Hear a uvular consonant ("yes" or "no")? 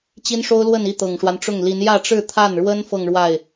no